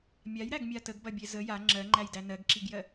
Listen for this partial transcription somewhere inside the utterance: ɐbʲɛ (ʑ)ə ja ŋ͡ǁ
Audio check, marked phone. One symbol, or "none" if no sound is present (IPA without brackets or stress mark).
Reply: z